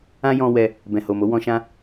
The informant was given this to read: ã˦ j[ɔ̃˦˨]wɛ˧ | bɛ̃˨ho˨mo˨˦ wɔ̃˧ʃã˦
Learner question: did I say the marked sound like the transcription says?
no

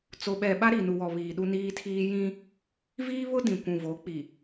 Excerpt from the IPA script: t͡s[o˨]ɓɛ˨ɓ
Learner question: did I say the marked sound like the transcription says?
yes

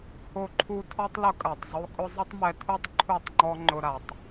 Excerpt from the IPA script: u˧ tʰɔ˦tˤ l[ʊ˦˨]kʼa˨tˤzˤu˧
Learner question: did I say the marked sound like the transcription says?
no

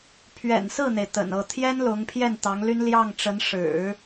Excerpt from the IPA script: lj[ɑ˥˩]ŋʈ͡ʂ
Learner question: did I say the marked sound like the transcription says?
yes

